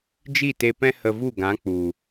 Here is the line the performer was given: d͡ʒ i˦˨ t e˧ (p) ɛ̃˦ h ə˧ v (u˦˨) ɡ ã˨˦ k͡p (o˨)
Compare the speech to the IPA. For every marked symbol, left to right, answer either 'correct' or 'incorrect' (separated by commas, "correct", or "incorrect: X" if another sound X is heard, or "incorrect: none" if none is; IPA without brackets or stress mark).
correct, correct, incorrect: u˨